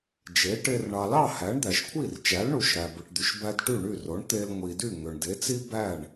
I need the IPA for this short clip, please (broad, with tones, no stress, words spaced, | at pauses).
d͡ʒe˩˥ʈe˧r ɳɑ˩lɑ˥˩ hæ˩˥ɳd̪æ˩ʃkʷʰi˥˩r t͡ʃæ˩˥lɳu˩ʃɾæ˩ bɯ˩ʈd̪y˩ʃbæ˧d ʈy˥˩ɳy˥˩ro˩˥ɳt̪e˧l ŋʷi˩dy˥˩ ŋø˩ɳde˩˥t͡si˥ bæ˥˩ɳ